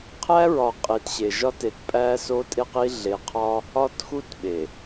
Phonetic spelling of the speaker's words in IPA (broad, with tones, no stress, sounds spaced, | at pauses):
qʰ æ˦ ɹ ɒ˨ qʼ i˨ t ɕ e˨ ʒ ɒ˦ t e˨ t pʼ æ˦ s o˦ tʼ e˦ q i˦ ɮ e˨ qʰ ɒ˦ | ɒ˦ t x u˦ t ɓ e˨